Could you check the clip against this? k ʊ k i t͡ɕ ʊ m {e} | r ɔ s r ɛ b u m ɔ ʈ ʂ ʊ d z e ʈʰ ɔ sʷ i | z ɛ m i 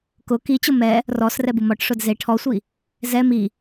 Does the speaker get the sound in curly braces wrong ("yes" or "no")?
yes